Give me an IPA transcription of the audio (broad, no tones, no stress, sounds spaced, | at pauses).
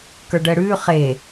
k ə˞ ɖ əː ɽ ʉː χ e